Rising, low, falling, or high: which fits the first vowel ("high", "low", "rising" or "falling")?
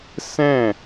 falling